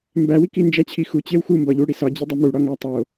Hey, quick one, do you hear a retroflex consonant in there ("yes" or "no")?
yes